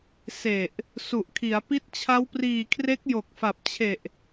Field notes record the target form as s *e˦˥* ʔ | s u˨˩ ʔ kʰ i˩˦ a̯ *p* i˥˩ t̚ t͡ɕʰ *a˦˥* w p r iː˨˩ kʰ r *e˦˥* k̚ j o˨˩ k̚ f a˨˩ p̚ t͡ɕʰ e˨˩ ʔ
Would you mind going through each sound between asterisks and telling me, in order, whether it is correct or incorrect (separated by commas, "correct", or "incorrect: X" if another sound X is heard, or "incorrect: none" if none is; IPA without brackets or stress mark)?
incorrect: e˨˩, correct, correct, correct